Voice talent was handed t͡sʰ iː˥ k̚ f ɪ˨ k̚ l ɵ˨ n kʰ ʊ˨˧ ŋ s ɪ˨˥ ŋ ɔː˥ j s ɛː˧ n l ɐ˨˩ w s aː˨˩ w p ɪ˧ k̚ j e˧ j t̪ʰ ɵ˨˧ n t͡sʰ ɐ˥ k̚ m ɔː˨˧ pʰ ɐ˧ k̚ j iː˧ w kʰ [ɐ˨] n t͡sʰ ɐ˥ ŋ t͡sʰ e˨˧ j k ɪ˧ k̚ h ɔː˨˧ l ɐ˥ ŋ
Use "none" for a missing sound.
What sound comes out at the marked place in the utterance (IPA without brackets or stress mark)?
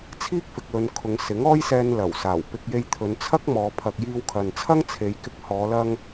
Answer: ɐ˨